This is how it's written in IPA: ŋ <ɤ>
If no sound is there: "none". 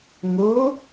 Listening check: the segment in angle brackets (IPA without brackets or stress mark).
o